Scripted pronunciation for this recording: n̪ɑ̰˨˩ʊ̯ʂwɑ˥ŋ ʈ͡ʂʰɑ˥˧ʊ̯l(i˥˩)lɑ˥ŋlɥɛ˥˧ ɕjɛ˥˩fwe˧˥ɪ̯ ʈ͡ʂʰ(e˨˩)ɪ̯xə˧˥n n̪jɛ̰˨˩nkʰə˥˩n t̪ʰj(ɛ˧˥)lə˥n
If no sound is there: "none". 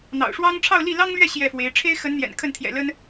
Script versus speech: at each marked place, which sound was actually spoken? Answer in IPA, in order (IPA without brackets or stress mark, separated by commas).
i˥˩, e˥, ɛ̰˨˩